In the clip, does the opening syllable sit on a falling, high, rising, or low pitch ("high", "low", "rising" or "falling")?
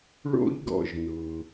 high